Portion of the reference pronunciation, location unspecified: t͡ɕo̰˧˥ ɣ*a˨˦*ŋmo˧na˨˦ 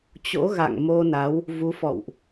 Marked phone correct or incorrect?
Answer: incorrect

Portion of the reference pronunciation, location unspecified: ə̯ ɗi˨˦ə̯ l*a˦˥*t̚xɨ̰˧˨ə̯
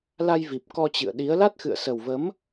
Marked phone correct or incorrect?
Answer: correct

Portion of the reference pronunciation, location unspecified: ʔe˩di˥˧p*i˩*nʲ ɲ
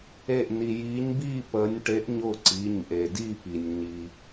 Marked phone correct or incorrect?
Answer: correct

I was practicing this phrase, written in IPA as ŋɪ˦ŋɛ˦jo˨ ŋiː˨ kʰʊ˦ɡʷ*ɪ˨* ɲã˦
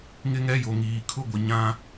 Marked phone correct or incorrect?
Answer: correct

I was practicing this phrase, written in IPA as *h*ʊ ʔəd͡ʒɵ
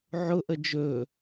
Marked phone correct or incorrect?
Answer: incorrect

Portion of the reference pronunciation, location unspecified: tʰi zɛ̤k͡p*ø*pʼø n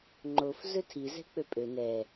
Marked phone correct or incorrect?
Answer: correct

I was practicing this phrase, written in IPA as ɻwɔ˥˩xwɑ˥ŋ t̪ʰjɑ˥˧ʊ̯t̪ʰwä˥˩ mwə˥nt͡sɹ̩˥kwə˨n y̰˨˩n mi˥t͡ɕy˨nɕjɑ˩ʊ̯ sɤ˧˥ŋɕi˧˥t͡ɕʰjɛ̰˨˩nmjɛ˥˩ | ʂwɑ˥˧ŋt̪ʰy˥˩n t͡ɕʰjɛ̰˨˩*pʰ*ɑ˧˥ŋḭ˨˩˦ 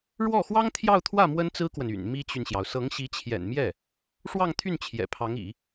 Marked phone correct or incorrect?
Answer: correct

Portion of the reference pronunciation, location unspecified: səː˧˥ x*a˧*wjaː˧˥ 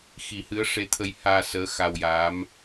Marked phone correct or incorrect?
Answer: correct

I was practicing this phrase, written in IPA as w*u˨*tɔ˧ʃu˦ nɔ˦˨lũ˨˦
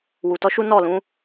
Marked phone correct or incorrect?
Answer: correct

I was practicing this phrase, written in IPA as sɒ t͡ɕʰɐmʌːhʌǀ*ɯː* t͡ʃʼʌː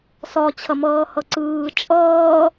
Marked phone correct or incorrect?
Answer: correct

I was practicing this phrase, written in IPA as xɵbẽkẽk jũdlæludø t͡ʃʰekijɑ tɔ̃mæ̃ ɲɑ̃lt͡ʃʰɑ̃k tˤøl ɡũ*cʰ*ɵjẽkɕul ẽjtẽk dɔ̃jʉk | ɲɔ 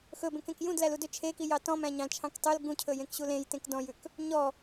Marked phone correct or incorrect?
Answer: correct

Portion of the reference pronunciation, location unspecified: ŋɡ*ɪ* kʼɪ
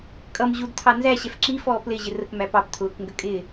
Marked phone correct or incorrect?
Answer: incorrect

